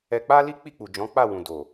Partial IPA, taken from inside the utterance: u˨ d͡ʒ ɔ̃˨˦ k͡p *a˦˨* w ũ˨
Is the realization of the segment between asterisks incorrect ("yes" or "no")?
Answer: no